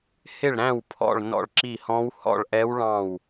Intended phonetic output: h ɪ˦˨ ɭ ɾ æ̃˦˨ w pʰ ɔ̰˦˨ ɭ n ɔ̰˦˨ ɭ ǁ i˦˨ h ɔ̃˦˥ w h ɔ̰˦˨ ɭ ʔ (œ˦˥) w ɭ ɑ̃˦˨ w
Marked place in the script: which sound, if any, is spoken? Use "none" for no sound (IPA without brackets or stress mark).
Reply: ɛ˦˥